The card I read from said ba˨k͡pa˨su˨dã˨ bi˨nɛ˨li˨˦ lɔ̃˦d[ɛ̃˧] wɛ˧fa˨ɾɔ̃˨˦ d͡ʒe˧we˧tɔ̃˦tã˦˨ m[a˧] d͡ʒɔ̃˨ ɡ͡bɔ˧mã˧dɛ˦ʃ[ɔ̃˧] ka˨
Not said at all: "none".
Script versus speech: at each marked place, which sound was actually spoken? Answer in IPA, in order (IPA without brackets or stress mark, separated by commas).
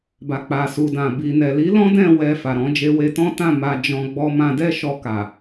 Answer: ɛ̃˦˨, a˧, ɔ˧